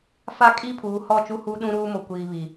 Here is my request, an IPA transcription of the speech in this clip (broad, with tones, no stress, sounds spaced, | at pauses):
f a˦ kʼ i˦ pʰ uː˨ h ɔ˦˨ t͡ʃ u˦ h u˦ ɗ ũ˦ ɾ uː˦ m o˨ kʷ iː˨ β i˨